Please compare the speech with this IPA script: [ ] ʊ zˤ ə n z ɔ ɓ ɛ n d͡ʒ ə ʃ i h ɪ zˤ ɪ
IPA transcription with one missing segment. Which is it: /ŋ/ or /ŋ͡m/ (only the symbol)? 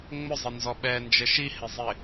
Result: ŋ͡m